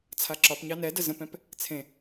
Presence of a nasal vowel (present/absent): present